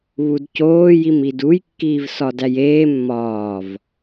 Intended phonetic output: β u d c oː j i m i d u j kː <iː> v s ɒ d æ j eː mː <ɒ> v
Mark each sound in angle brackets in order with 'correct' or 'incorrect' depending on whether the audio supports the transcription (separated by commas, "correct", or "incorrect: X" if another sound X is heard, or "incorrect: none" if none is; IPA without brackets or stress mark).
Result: correct, incorrect: ɒː